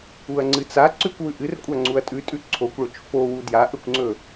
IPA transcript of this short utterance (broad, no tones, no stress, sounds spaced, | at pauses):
u ɐ̯ ŋ͡ǀ ɨ t͡s a ǀ ʉ kʷ w ʉ ʔ ɨ r kʷʼ a ŋ͡ǀ u ɐ̯ tʼ ʉ tʼ ʉ ǀʰ o kʷ ɭ ɵ t͡ʃ f o w u d j a ʔ ɵ kʷ ŋ͡ǀ ɵ